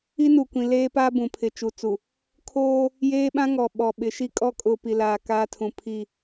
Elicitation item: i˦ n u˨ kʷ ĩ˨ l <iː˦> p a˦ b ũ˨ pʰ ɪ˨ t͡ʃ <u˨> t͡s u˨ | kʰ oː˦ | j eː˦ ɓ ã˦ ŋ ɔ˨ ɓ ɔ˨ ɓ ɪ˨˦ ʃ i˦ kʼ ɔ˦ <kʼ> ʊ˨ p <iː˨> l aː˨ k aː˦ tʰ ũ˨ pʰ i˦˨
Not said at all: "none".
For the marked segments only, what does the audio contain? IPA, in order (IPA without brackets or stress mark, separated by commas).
eː˦, u˨, kʼ, i˨